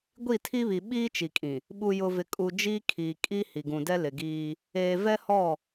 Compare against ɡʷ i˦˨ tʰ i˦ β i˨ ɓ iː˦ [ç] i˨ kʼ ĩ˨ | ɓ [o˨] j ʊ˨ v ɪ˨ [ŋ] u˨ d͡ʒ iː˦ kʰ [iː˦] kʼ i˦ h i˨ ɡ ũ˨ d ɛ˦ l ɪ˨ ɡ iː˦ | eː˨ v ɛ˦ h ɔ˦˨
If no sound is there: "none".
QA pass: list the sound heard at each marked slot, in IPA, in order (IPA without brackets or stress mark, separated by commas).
t͡ʃ, u˨, kʼ, iː˨